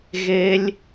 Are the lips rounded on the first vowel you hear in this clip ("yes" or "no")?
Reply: no